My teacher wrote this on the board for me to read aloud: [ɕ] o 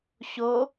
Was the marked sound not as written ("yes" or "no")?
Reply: no